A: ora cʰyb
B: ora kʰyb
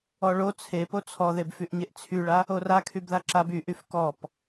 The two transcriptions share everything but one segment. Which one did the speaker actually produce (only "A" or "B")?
B